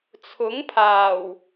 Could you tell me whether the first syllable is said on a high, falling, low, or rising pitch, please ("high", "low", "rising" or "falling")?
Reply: rising